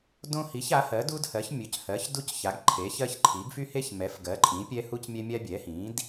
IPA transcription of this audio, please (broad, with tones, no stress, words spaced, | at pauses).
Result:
dõ˦ hi˩˥ça˩˥hɜ˩˥ du˦dhɜ˩˥ç mʲɵ˩˥chɜ˩˥çdu˦c ça˩˥ɡǃʰe˩˥çɜ˦çǃʰi˩˥ɡ fy˦he˦çmɛ˩˥f ɡɜ˩˥ǃʼĩ˩˥ pʲɛ˦hu˦cmʲɛ˦ mʲa˦ bʲɛ˩˥hĩ˩˥d